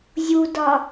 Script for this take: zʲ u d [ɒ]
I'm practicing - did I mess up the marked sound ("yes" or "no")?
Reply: no